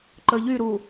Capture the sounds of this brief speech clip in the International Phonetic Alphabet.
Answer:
ǃ əː ʎ y ɾ uː

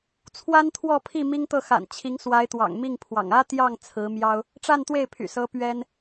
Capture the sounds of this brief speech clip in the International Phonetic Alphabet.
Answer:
t͡sʰ w a˥ n t̪ʰ w ɔ˥˧ pʰ i˥˩ m i˥ ŋ t̪ ɤ˥˩ x a̰˨˩ n t͡ɕʰ i˧˥ ŋ s w a˧˥ ɪ̯ t̪ w ɑ̰˨˩ ŋ m i˥˩ ŋ pʰ w ɑ̰˨˩ ŋ ä˥ t̪ j ɑ˥˩ ŋ t͡sʰ ɹ̩˧˥ m j ɑ˥ ʊ̯ | ʈ͡ʂ a˥˧ n t̪ w e˥˩ ɪ̯ pʰ y̰˨˩ s ɤ˧˥ p ɥ ɛ˥ n

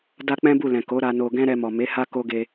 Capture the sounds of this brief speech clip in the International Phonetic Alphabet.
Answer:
d a˦ k͡p ɛ̃˦ b u˦˨ l ɛ̃˨ k o˨˦ ɾ a˧ n o˧ ɡ ɛ̃˦ ɾ ɛ˧ m ɔ˨ m e˨˦ h a˦ k o˦ ɡ e˧

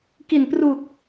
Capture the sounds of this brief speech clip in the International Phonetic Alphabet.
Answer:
k i˨˩ n p r u˨˩ k̚

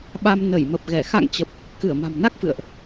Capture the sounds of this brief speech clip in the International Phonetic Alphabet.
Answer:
ɓ a˧ m n ə˧˩ j m ə˨˩ p̚ ɣ ɛ˧˩ x a̰˧˨ ŋ t͡ɕ ə˨˩ p̚ | k ɨ˧˩ ə̯ m a̤˨˩ m n a˦˥ k̚ f ɨ̰˧˨ ə̯ ʔ

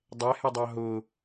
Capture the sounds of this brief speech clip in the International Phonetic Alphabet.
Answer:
dˤ ɛ h ɛ dˤ ɑ ɦ ʊ

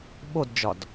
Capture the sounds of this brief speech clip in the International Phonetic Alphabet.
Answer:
ɓ o d d͡ʒ ɒ d

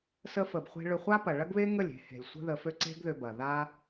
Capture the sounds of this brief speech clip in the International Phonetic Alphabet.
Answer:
s ə˧ f ə˨ b χʷ e̤˧ ɭ ʏ˧ χʷ a˦ p ɐ˨ ɭ ɐ˦ ɡ β e˦ ŋ ə˦˨ lʲ e̤˧ h e̤˨ lʲ sʷ ə̤˦ ð ə˧ f ø˦ ǀ e̤˦ ɡ ð ʏ˧ b ɐ˨ ð a˦

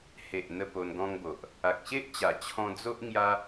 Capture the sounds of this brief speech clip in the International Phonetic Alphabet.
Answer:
h e˨ ʔ n̪ ə˧ p o˧ n ɡ ɔ̃˧ ŋ b o˨ ʔ | a˨ k̚ ɕ e˦ ʔ t͡ɕ a˨˩ t͡ɕʰ ɔ̃˧ d͡z o˦ ʔ ŋ j a˦

